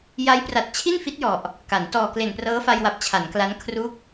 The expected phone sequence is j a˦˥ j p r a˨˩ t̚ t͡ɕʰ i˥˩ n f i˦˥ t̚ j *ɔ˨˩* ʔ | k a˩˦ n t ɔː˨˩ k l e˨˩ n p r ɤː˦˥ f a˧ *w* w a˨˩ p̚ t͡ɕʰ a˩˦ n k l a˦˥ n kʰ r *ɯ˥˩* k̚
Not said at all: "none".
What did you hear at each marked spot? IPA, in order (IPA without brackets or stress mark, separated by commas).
ɔ˨˩, j, u˥˩